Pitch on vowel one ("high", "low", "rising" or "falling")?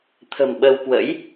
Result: low